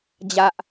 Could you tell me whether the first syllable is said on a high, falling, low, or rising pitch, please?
high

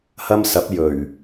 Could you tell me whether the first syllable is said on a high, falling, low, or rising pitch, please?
high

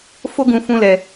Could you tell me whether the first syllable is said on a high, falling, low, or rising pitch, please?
high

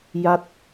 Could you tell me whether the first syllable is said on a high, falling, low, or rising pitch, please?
falling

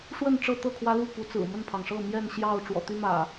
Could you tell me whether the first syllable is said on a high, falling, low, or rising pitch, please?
falling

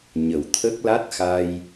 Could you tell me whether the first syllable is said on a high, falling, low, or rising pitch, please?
low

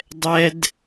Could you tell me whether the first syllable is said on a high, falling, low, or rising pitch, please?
high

